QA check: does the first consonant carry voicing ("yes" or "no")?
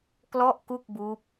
no